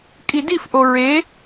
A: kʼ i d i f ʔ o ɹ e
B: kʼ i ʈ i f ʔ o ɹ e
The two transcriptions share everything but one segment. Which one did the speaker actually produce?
A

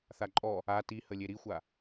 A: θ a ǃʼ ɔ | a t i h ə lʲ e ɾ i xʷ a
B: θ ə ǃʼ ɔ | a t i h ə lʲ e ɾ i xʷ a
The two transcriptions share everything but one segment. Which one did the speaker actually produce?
A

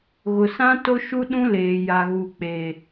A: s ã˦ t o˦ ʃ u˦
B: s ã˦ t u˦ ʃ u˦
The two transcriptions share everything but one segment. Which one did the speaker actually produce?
A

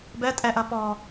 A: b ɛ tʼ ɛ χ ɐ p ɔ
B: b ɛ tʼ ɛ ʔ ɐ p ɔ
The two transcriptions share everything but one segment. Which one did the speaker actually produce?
B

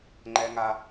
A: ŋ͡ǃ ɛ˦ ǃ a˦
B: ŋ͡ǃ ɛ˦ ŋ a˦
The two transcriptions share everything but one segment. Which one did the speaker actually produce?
B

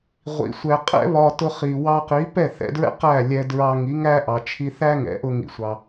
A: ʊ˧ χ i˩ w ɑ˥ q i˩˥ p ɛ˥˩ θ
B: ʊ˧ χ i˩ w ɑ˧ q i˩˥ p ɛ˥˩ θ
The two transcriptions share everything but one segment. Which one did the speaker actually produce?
B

